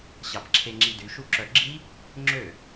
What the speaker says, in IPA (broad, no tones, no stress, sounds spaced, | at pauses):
ɕ ɑ p ǁʰ e ŋ͡ǁ i d y ʃ u ǁ œ ɡ͡ǁ i | ŋ͡ǁ ø